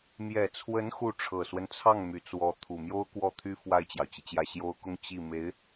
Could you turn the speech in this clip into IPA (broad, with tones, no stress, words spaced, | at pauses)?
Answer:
mjɛ˨˩t͡sʰwə˧˥n xu˥˩ ʈ͡ʂʰɤ˨˩swə˦nt͡sʰɑ˥˩ŋ my˨˩t͡swɔ˧˥ t̪ʰu˨˩mjo˥ʊ̯ kwɔ˥˩t̪ʰy˥ fwa˥˩ɪ̯t͡ɕjɑ˩ʊ̯t͡ɕi˩t͡ɕjä˥˩ ɕjo˥ʊ̯ kʊ˥˧ŋ t͡ɕi˥˩ me˧˥ɪ̯